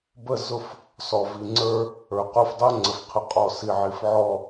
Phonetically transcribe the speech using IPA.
b ə˦˨ z ʊ˦ f | s ɔ˨ v i˨ ŋ͡ǀ ə˞˦ | ə˞˨ q o˦˨ f dˤ o˦ ŋ͡ǀ ə˨ f qʰ ə˨ qʼ ɔ˨ s i˨ ʕ i˨ f ʕ ɔ˦˨

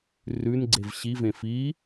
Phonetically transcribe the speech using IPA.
r ʉ n ɡ͡ǀ e v ɕ i v ẽ f i

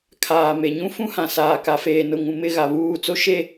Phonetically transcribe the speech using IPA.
kʰ aː˨ m e˨ ɲ ũ˦ f ũ˦ h ã˨ s aː˨ k a˨ f eː˨ n ʊ˨ ŋ ũ˨ m ɪ˦˨ ɣ a˨ β uː˦˨ t͡s o˦ ʃ e˦

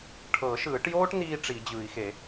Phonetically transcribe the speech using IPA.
ʈʰ ɤ˨˩˦ ʃ ɯː˨˩˦ ʈ j oː˥ ʈ n iː˥ ʈ͡ʂ i˨˩˦ d͡ʑ ɯ˨˩˦ i̯ x e˨˩˦

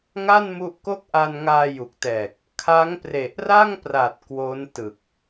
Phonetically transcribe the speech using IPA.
ŋ a˥˩ n m u˦˥ ʔ k o˥˩ k̚ ʔ a˧ n ŋ aː˧ j u˨˩ k̚ t ɛː˨˩ k̚ | kʰ a˦˥ ŋ p r e˨˩ ʔ r a˥˩ ŋ p r a˨˩ t̚ k w o˦˥ n t ɯ˨˩ k̚

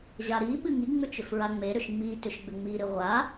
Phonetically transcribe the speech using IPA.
ʑ a ɾ i ɓ ɨ ŋ i ŋ͡m ʏ t͡ʃ ʏ f ɹ a ŋ͡m e ɾ ʏ ʃ ŋ͡m i t ʏ ʃ ɡ͡b ʏ ŋ͡m i ɾ ɨ ʁʷ a

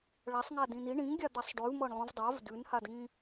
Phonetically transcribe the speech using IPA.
ɭ a sˤ ŋ a d ĩ n i ɳ ĩ ŋ ɡʲ a d̪ a sˤ ɖ ʉ v m ɤ ɳ lˠ ũ v dˤ a v d ʉ n h a d ŋ ĩ

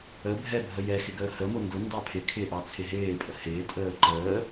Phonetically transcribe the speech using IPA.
ə bʱ ɛ bʱ ə j ɛ x ɪ ɡ əː h ə m ʊ n d ʊ n d ɑ pʰ ɪ kʰ ɪː ʔ ɑ t͡sʰ ɪ ɦ ɪː pʼ ə h ɪː tʼ əː ǃ əː

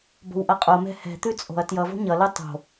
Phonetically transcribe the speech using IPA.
b o̤ w ʔ ʌ qʼ o m ɛ̤ h ɛ̤ t̪ ʉ t͡sʼ o̤ ɐ̯ t j ʌ v o̤ ɲ ʌ l ɯ tˤ o̤

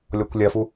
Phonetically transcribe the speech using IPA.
lʲ ɔ kʷ lʲ ɐ f u

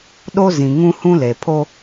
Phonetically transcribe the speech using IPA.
ɗ o˦ z ĩ˨ ŋ ũ˦ h ũ˦ l e˨ pʰ o˦

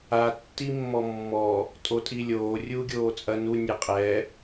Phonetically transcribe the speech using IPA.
a tː i mː ɔ mː ɔ | tʼ o tʼ i lʲ oː rʲ uː ɡʲ oː t͡sʼ ɐ n u nʲ ɛ qʼ ɛ

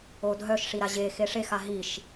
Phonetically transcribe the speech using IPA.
o dʱ œ ʃ ʂ i ɾ a ʑ e x e ʂ e x a ɦ i ʃ

